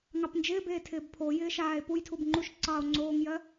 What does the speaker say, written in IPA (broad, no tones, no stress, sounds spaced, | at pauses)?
ŋ ɑ p n d͡ʒ ɪː b eː tʰ ɪː b pʰ o j ɪː ʃ aː e̯ p u j tʰ u b ŋ͡ǃ u ʃ ǀ ɑ o̯ ŋ͡ǀ oː ŋ j ɜ